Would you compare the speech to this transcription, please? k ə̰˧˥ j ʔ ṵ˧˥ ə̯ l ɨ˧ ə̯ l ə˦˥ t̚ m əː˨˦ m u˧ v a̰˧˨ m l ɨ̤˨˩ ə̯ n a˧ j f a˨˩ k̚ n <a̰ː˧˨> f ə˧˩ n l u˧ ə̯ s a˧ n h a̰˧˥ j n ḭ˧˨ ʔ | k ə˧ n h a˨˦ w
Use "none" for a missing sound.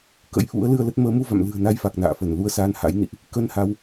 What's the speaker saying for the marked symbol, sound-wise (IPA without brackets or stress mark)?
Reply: a̰ː˧˨